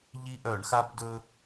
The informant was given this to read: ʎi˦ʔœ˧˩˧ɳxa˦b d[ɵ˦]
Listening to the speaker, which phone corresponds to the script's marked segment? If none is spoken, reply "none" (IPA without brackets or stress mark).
ɵ˦